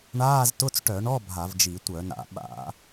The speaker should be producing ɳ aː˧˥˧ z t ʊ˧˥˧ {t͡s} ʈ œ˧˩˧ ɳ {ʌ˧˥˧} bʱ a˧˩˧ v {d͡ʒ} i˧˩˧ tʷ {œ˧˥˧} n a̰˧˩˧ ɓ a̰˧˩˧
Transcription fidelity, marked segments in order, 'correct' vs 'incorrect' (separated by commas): correct, incorrect, correct, incorrect